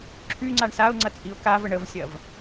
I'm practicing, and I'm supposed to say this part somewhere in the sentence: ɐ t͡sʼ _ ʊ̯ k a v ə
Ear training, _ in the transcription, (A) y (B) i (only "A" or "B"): B